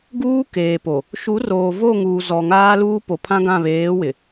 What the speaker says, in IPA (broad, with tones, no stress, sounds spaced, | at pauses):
ɡ uː˦ k eː˨ p o˨ | ʃ u˨˦ r oː˨ v o˦˨ ŋ uː˨ z ɔ˨ ŋ aː˦ l uː˦ p o˨ pʰ ã˦ ɡ ã˦˨ β eː˨˦ w ɪ˨